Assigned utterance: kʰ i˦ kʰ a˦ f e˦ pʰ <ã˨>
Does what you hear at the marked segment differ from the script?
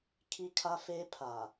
yes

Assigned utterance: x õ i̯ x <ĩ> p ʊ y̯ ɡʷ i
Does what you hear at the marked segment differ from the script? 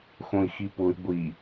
yes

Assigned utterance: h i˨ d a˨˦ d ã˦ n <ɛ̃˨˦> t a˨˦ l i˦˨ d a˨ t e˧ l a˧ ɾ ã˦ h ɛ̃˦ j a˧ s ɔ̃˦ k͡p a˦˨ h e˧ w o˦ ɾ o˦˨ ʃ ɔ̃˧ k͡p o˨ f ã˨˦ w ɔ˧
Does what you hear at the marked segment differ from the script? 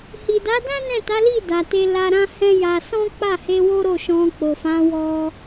yes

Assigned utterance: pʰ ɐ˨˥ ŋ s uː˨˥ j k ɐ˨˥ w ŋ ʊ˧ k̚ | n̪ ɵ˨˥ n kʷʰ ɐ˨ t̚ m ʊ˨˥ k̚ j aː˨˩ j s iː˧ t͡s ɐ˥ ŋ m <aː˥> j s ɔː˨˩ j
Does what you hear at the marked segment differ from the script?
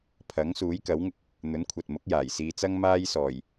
no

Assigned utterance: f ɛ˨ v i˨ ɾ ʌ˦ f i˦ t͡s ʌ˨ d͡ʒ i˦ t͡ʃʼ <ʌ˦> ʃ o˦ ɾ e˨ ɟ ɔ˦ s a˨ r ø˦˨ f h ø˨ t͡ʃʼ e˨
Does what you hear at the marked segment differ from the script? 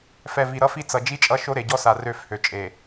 no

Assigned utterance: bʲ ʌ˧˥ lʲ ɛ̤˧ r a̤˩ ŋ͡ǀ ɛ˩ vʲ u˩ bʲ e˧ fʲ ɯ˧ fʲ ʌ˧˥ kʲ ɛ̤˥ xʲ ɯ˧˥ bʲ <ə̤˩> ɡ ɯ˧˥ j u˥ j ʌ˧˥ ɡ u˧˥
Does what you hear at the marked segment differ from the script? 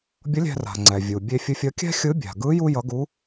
yes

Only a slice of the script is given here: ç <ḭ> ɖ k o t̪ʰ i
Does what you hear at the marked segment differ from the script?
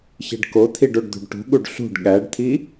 yes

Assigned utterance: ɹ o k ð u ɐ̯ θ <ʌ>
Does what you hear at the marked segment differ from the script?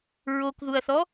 yes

